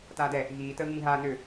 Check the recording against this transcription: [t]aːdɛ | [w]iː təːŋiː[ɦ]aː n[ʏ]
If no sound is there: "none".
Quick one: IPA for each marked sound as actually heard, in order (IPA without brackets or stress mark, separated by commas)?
t, ɣ, ɦ, ʏ